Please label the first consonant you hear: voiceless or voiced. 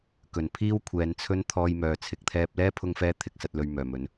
voiceless